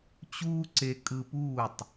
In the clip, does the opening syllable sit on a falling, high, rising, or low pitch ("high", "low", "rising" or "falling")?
high